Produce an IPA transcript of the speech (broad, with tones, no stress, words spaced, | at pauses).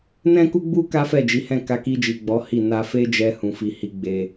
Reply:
nɛ̃˦ku˦ɡ͡bu˦ ka˦fɛ˦˨d͡ʒi˨˦hɛ̃˦˨ ka˧ki˧d͡ʒi˨ ɡ͡bɔ˨˦hi˦˨ na˧fe˦d͡ʒɛ˧ hũ˨fi˨hi˨˦ ɡ͡be˧